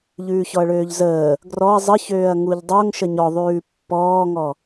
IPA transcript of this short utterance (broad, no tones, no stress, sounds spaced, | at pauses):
ʎ ʉː ç ɔ ɐ̯ ɭ øː ʎ z əː | ɡ r ɔ ɐ̯ zˤ ə ç øː ɐ̯ ŋ u ʎ dˤ o ŋ ʃ ə ɲ ɔ ðˤ ʉː pː ɔː ŋ ɔ